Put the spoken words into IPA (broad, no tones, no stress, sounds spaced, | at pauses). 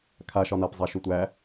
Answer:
kʰ a ʃ ɒ n a p zˤ a ʃ u tʷ æ